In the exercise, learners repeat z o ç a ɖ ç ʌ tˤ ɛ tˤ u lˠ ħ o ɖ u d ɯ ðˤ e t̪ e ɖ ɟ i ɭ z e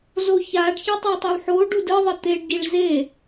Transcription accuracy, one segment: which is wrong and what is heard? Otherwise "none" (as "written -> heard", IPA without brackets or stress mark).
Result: none